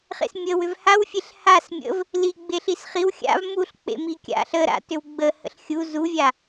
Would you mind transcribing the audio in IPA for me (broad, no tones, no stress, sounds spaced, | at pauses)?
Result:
χ ḛ s mʲ ə w ʏ v h a w fʲ e ɬ h a s mʲ ə̰ v | l i ɡ͡b e ɬ i s χ i w xʲ a̰ v m u ɬ k͡p ḛ m i kʲ a̰ ɬ ə ɾ a̰ t ʏ w ɡ͡b ə h ə̰ ɬ xʲ u z u vʲ a